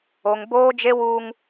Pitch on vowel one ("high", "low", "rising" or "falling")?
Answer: high